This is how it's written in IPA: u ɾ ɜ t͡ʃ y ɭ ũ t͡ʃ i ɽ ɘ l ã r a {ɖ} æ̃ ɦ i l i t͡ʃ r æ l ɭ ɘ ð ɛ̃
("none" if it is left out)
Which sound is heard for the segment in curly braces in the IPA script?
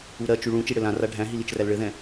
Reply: ɖʱ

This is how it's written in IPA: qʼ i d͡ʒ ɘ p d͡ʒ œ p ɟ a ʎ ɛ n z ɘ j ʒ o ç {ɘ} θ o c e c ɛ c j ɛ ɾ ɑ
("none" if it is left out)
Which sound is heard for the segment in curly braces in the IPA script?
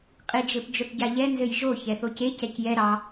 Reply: ɛ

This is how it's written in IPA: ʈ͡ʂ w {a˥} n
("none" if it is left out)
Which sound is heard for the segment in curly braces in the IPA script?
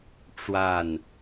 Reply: a˥˩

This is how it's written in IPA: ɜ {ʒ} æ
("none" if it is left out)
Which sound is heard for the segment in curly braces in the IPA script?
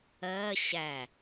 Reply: ɕ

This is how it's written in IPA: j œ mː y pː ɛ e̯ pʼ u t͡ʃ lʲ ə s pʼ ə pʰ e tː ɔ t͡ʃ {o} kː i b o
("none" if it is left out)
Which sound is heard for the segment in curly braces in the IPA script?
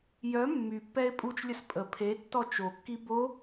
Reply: o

